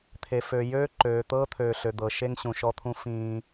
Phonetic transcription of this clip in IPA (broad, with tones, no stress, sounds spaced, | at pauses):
t̪ʰ e˨ f ø˨ j øː˦ ǃ øː˨ t̪ ɤː˦ t̪ʰ ø˨ ɬ ø˨ d̪ ɤ˨ ʃ e˦ ŋ ɕ ũ˨ ʃ ɔ˦ t̪ʰ ũ˦ f ĩː˦